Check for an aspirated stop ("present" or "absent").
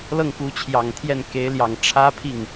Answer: present